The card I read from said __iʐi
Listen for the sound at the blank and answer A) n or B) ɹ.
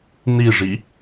A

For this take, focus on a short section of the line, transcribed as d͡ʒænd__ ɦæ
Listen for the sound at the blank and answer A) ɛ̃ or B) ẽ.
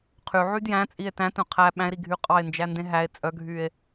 B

